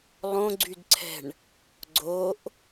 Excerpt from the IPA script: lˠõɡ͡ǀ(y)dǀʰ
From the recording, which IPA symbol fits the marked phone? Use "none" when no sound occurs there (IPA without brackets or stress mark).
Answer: y